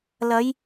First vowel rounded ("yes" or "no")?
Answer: no